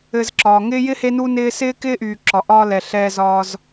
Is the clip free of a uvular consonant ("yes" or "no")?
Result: yes